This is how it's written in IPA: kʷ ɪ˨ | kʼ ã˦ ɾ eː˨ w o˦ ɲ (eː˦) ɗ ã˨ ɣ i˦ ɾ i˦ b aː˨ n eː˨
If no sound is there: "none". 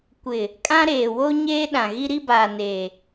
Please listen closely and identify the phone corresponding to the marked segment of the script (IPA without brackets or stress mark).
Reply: eː˦